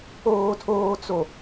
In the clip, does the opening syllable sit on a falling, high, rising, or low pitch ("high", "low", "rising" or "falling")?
low